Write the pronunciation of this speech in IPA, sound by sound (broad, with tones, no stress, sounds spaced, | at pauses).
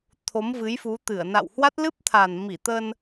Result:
t̪ʰ o˨˦ m v ɨ˨˦ j f u˨˦ t̪ ɨ˧˩ ə̯ n a̰˧˨ w h w a˦˥ t̚ l ɨ˦˥ p̚ t̪ʰ a˨˩ n m i˧˩ t̪ ə˧ n